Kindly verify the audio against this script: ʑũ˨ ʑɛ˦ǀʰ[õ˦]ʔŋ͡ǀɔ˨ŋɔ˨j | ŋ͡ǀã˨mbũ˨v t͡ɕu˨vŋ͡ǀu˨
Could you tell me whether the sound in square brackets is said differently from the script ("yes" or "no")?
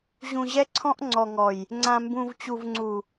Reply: yes